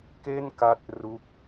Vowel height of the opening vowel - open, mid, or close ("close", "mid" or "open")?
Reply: mid